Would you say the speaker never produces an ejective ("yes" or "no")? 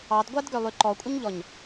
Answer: no